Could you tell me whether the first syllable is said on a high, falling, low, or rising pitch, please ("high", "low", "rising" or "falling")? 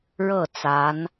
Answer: falling